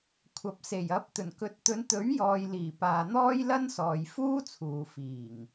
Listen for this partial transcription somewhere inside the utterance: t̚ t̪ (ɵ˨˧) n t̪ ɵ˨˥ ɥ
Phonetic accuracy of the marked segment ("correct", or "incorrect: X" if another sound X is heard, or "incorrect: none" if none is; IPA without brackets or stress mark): correct